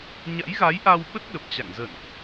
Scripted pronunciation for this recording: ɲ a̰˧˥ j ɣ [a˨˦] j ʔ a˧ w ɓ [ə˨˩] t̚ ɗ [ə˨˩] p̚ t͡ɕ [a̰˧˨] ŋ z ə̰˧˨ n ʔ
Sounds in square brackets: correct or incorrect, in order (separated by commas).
correct, incorrect, correct, correct